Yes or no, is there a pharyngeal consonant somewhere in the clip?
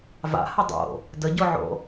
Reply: yes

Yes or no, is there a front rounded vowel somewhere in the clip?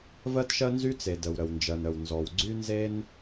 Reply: yes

